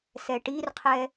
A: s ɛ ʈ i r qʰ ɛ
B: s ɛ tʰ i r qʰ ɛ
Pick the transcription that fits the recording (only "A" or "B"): A